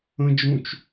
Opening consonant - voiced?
yes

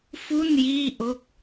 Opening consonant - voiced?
no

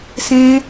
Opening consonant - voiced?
no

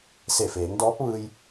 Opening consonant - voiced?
no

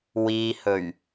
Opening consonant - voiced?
yes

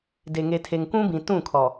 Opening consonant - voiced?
yes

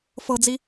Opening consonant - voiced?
no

